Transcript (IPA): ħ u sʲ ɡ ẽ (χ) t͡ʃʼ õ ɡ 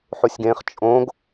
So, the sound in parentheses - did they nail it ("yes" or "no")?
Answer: yes